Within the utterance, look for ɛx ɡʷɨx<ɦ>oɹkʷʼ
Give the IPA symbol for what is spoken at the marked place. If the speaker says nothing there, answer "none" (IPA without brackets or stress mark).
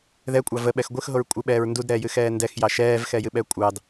ɦ